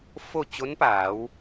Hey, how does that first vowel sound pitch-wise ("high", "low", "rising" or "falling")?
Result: falling